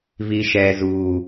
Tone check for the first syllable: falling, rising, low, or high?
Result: low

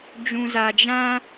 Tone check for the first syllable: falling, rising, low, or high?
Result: low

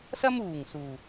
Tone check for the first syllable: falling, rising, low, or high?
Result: high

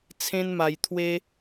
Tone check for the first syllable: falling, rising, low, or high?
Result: high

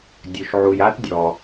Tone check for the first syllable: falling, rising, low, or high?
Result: low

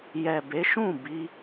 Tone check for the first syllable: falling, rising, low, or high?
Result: low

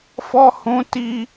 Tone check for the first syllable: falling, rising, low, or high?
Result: high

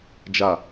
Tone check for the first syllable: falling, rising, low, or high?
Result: low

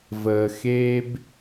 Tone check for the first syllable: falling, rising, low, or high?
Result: low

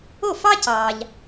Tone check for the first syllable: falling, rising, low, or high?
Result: falling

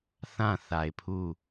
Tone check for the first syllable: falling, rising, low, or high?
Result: falling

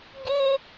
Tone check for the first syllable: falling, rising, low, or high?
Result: high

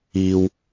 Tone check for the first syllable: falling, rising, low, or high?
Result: high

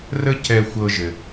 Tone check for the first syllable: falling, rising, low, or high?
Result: high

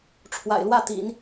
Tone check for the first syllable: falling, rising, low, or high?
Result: low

